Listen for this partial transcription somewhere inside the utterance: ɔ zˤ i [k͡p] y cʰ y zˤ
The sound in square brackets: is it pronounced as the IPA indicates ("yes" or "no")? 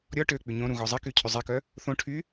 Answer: no